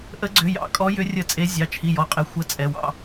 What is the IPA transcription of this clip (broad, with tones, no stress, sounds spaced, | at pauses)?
ʔ ə˨˦ ɡ͡ǀ ʏ˩˧˩ j ɑ̰˨˦ kʼ ɔ˨˦ j ʏ˨˦ rʲ ə˧˩˧ t͡sʼ e˨˦ zʲ ɑ˩˧˩ t͡ʃʰ i˩˧˩ j ɔ˩˧˩ qʼ e˩˧˩ xʷ ə˨˦ t͡sʼ ɛ˩˧˩ w ɑ̰˥˩